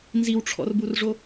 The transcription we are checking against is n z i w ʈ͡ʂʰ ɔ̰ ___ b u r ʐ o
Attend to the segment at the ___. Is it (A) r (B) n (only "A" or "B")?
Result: A